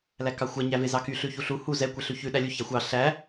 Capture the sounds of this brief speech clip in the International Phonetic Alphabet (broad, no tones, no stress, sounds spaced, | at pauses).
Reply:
l æ k ɑ xʷ æ ɲ æ v e z ɑ k y ɬ ʉ ç u ɬ u h u z ɛ kʷ e ɬ ʉ ç ʉ ɗ æ lʲ u ç æ xʷ ɑ ɬ æ